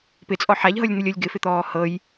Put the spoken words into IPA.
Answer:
p ɪ t͡sʼ ɔ ħ a ʎ ɦ ɤ lʲ n̪ ɨ lʲ ɤ lʲ ɡ ɪ f ɪ t̪ ɔː h ɤ j

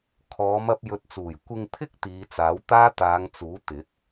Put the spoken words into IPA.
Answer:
kʰ ɔː˨˧ m ɐ˧ p̚ j ɵ˨ t̚ t͡s uː˨˩ j kʷ ɪ˧ ŋ pʰ ɪ˥ k̚ t̪ iː˨˧ t͡s aː˨˥ w t̪ aː˥ t̪ aː˨˧ ŋ t͡s uː˨˥ t̪ ɪ˨˥ k̚

